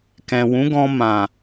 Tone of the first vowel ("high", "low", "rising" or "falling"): low